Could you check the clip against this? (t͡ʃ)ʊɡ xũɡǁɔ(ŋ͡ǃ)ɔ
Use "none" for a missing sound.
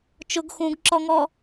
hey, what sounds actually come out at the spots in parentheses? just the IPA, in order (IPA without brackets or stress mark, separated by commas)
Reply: t͡ʃ, ŋ